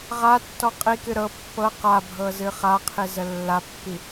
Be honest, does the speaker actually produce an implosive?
no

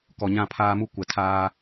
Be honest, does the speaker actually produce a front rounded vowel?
no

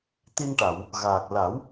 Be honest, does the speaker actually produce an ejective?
no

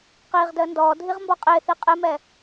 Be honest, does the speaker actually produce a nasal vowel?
no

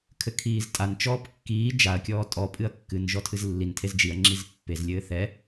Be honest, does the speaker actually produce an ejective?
yes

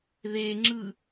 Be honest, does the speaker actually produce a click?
yes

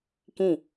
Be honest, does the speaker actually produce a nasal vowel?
yes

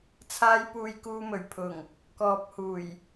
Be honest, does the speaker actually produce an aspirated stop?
yes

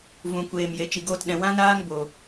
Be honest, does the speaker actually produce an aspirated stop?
no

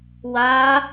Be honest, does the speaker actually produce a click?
no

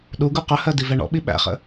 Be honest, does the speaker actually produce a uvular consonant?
yes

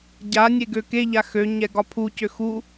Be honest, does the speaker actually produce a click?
no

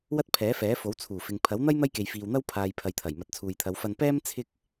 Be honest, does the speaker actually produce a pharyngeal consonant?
no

